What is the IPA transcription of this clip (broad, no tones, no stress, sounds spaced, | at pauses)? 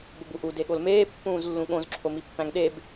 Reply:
b o b u ʔ u d e ɠ o l m eː pː ũː z lː ũ ɠ õ z ǁʰ o m i pː æ̃ ŋ ɗ e b